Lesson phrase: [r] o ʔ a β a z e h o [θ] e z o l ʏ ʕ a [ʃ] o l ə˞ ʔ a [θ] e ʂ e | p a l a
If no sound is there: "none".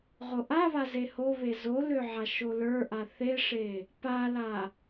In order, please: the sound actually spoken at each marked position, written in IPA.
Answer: ʁ, β, ʃ, θ

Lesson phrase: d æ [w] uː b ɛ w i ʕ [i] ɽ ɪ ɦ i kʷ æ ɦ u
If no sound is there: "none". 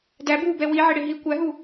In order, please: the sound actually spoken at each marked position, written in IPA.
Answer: b, ɪ

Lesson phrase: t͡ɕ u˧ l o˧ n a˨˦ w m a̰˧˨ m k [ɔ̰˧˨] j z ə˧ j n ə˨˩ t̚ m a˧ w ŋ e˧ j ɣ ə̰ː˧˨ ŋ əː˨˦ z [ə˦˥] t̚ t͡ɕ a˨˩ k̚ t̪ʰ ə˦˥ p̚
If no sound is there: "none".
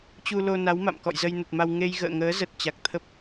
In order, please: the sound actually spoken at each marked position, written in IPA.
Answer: ɔ̰˧˨, ə˨˩

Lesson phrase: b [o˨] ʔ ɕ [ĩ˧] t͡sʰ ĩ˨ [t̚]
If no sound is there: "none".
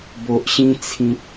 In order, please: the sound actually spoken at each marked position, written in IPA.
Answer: o˨, ĩ˧, t̚

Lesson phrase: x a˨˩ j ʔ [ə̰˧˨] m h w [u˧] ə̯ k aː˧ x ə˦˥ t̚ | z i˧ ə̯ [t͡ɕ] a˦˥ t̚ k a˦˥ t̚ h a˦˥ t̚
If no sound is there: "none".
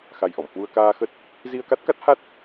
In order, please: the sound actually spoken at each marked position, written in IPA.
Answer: ɔ̰˧˨, u˧, k

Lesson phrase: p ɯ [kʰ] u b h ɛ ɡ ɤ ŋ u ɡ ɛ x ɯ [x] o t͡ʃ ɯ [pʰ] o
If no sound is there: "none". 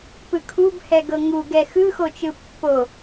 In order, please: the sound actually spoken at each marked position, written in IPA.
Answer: kʰ, x, pː

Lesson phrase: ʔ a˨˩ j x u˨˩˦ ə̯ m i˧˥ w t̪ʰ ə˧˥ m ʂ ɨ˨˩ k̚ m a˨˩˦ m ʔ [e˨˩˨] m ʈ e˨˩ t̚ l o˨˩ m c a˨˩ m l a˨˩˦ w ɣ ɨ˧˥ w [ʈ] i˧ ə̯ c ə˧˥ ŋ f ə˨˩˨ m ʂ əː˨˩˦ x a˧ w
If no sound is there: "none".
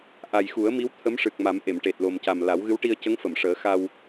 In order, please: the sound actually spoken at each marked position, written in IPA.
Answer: e˨˩˨, ʈ

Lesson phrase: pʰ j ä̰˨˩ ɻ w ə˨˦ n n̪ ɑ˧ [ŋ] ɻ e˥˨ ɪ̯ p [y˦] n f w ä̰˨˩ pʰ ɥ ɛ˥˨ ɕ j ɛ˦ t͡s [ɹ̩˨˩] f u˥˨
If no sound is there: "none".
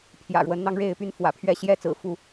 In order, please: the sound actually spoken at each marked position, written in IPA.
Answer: ŋ, y˦, ɹ̩˨˩

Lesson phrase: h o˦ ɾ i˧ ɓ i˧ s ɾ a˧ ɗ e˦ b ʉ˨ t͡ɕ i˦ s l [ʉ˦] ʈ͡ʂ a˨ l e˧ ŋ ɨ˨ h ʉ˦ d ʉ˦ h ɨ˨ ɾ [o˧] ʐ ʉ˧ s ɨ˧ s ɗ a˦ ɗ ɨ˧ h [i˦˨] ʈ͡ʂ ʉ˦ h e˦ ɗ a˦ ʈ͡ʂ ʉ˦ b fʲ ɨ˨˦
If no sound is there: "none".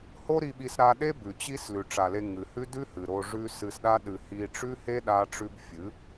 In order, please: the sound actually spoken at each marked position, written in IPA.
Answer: ʉ˨, o˧, i˧

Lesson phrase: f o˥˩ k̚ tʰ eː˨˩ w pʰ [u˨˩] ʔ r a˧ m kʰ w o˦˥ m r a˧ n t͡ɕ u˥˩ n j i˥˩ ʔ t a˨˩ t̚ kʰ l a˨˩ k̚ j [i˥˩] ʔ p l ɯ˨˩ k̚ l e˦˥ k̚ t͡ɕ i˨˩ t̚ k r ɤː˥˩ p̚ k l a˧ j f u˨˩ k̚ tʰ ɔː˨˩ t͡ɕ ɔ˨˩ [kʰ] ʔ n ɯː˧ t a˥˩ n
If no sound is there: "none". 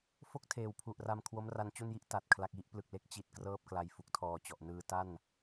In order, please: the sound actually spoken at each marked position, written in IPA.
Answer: u˨˩, i˦˥, none

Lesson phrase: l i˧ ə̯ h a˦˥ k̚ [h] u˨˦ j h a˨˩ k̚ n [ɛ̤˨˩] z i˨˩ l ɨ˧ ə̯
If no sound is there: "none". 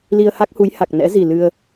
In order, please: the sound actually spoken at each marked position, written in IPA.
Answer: h, ɛ̰˧˥

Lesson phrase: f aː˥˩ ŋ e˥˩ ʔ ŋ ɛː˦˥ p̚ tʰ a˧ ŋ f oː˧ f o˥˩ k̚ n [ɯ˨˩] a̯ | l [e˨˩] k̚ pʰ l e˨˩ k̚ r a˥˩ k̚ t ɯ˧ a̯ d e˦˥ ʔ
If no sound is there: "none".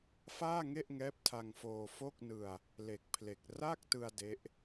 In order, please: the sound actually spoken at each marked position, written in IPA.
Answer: ɯ˧, e˨˩

